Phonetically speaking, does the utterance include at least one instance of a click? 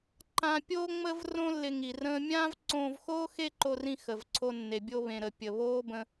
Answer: yes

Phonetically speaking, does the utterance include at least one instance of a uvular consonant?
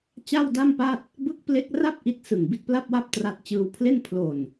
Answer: no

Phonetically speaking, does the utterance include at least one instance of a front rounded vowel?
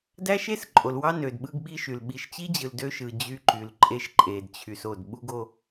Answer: yes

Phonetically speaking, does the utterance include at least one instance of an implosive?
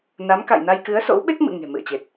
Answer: yes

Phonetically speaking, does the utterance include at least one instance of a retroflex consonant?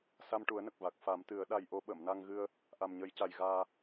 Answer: yes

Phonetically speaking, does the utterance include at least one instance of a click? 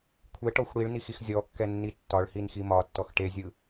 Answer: no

